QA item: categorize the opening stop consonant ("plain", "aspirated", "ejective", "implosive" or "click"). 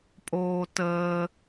ejective